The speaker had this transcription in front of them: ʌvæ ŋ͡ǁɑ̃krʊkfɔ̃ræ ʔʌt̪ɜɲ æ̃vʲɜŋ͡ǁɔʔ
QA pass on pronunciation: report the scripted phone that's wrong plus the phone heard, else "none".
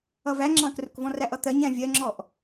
f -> v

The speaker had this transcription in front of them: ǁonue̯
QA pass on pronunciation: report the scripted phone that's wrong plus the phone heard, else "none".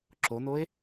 u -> o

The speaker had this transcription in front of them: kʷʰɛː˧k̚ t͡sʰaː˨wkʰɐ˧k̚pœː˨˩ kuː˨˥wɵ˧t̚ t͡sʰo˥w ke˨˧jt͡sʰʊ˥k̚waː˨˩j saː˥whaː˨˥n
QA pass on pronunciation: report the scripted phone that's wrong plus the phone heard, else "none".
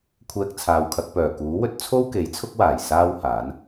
none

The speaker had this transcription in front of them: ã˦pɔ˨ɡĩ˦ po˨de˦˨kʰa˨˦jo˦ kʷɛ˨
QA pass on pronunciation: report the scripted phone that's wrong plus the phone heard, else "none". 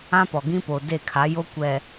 none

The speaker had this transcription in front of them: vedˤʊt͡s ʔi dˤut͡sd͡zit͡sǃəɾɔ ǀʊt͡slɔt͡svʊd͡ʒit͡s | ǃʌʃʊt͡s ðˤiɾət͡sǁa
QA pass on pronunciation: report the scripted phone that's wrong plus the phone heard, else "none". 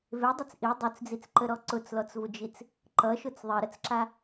none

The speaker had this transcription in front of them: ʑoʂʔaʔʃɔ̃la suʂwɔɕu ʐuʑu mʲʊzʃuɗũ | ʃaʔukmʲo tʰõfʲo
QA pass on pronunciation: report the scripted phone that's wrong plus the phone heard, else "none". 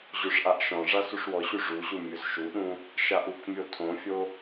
l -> ʐ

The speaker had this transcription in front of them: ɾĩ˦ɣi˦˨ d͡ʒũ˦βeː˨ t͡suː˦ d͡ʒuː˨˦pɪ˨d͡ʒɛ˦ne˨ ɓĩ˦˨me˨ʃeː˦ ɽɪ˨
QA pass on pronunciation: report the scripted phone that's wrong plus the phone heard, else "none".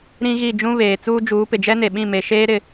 ɽ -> ɾ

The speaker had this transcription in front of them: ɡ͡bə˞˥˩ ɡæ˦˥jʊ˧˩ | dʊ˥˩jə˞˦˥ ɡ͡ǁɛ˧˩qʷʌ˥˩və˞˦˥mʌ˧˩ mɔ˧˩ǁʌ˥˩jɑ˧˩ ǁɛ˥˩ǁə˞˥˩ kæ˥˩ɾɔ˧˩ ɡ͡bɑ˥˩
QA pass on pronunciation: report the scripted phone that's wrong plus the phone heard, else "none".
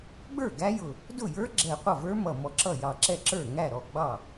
k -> ŋ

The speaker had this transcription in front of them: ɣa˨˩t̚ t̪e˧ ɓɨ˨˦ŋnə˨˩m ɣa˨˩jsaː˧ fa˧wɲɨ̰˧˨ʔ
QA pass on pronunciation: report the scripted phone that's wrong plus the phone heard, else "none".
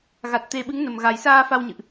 none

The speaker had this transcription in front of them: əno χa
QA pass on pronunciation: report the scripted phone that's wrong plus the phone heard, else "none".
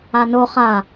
ə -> a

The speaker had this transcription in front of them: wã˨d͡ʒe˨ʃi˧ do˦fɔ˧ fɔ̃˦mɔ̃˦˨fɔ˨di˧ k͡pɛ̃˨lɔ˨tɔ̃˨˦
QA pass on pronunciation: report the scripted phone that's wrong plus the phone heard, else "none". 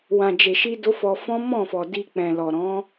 t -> ɾ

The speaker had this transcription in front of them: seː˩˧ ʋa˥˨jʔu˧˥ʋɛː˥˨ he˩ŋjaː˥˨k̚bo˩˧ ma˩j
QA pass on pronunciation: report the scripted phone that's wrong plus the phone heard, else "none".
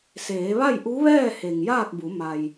o˩˧ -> u˩˧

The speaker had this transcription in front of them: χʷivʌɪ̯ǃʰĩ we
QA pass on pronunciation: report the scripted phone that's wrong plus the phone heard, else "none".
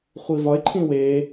ʌ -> ɒ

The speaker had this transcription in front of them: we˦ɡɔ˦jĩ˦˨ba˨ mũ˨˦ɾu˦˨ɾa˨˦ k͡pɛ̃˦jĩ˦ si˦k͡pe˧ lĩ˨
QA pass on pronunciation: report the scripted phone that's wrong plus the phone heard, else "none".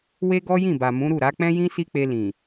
none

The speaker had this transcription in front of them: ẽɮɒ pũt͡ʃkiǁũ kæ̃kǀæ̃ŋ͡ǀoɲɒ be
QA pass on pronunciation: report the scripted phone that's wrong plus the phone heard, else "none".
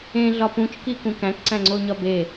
ǁ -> k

